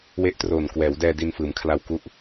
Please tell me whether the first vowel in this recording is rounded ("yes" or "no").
no